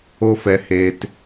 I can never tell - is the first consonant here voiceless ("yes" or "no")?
yes